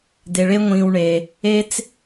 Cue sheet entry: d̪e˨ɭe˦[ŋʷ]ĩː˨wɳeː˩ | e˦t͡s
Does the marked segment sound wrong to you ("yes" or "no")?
no